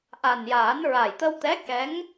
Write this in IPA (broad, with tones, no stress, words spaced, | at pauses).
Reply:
ʔa˨˩njaː˨˩˦n ɹa˨˩jt̪ə˧wt̪ɛ˧˥kɛ˧˥ŋ